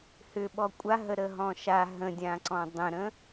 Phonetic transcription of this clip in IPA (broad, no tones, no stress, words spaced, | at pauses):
hʏɓɔ kʷʼaɦə ɾəɦɔ̃ʃa ɦə̃dʲãǀɔ̃ dˤə̃ɾə̃